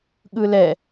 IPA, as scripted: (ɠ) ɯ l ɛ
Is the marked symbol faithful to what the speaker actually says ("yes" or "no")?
yes